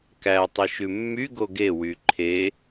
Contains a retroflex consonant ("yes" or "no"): no